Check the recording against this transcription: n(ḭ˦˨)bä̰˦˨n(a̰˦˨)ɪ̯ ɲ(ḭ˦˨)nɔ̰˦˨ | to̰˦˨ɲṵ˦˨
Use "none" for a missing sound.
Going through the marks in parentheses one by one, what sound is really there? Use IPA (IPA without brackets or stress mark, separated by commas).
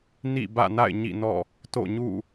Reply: ḭ˦˨, a̰˦˨, ḭ˦˨